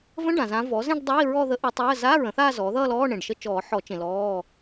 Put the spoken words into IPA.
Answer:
v ə̃˧˥˧ ɖ ã˨ z ã˧˥ v ɔ˩˥ z ẽ˥˧ ɖ dˤ ʌ˧˥˧ i̯ ɹ ɔ˥˧ ð ə˧˥ ʔ ə˧˥ tˤ əː˧˥˧ z a˧˥˧ ɹ ə̃˩˥ θ aː˥˧ z ɔː˩˥ ð ʌː˥˧ l ɔː˧˥˧ ɳ ẽ˨ ɖ ʃ ə˧˥˧ t͡ʃ ɔː˨˩˦ ħ ɔ˨˩˦ t͡ʃ ẽ˨ l ɔː˧˥˧

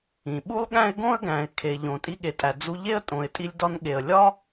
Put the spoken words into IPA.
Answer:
ĩ˩ ɓ u˥ lˠ ɠ æ̃˥ ɪ̯ ɡ õ˥ ə̯ ɡ æ̃˩ ɪ̯ kʰ e˩ ʎ õ˩ tʼ i˧ ɠ e˩ tʼ æ˩ d͡z u˧ ʎ e˥ ə̯ tʼ õ˩ ɪ̯ tʼ i˧ lʲ d ɒ˧ n ɠ e˩ ə̯ lʲ ɒ˥

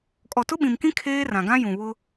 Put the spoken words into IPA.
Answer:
kʼ ɔ˨ t ʊ˦ ɓ ĩ˨ m k ĩ˦ kʰ eː˦ r ã˨ ɡ ã˦ j ũ˨ β ʊ˦

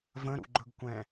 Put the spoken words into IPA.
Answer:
v ə̃ ɾ ṵ ɡ͡ǃ ɵ ɡ kʷ ɛ̃

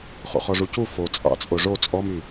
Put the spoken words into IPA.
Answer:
χ o̰ χ ɔ ʐ u c u f o t͡sʼ ɑ̰ t͡sʼ o ʐ o t͡sʼ ɔ m y

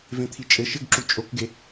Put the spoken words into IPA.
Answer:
v ẽ t̪ʰ i t͡ʃʼ ɘ ʃ ɘ ɡ ǁ u t͡ʃʼ o k ɡ e

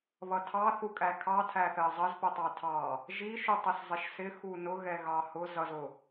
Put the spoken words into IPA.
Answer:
β ʌ tʰ ɑ θ u kʼ æ kʰ ɑ tʰ æ θ ɜ zˤ ʌ z p ʊ tˤ ɑ tʰ ɑ | ʒ i ʃ u tˤ ɛ s zˤ ɪ ʃ s ɪ x u n ʊ ɣ ɛ ɣ ɑ h ʊ z ʌ z ʊ

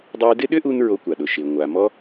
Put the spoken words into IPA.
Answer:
dˤ ʏː˧ d ɪ˦ ɗ ʏ˦ ʔ u˧ n ɹ o˧ kʷ a˨ ɗ ʊ˨ ʃ ɪː˨ ŋʷ a˨ m ɔ˦

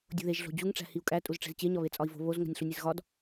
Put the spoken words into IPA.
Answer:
dʲ o̤ ð e ʒ ɮ o̤ d͡ʑ u ŋ ʈ͡ʂ æ̤ h i u̯ kʼ æ tʼ u z ʈ͡ʂ e̤ z t͡ɕ e ɲ ɒ β e t͡sʼ ɒ i̯ v o̤ β o z ŋ o̤ nʲ ɬ u nʲ e z ɣ ɒ d

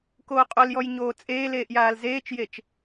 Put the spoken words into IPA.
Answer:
k oː qʼ o l j ɔ j ɲ oː t͡sʼ eː l eː ʔ j aː l z eː t͡ʃ j e t͡ʃ

